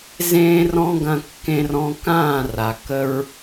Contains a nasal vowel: yes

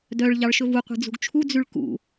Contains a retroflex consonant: yes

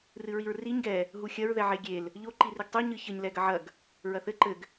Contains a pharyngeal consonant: yes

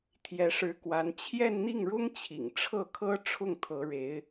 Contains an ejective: no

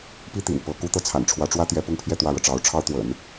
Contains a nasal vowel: no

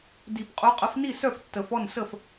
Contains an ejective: yes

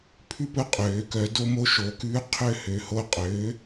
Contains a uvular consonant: yes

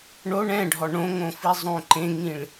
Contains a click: yes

